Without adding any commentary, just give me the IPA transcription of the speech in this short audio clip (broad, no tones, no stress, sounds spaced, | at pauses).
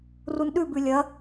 r u n ɗ ʉ b ʉ lʲ ɐ